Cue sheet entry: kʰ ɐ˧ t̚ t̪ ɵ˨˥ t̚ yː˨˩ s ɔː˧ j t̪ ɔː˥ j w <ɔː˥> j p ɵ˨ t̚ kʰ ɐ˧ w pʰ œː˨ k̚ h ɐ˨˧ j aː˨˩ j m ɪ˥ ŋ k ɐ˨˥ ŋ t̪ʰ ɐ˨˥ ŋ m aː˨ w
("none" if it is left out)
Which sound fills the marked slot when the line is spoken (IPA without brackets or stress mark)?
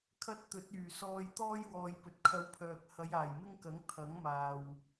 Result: ɔː˨